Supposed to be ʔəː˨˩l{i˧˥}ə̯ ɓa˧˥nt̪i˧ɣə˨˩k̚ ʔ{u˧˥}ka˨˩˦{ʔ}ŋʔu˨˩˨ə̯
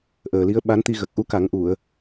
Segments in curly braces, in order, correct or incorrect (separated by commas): correct, correct, incorrect